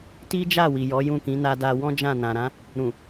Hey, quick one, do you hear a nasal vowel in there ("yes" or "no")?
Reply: yes